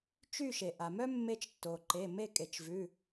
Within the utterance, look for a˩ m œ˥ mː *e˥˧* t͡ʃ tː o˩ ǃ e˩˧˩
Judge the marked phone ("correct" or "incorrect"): incorrect